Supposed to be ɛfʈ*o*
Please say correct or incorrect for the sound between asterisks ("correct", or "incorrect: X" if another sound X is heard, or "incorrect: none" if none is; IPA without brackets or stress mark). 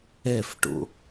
incorrect: o̰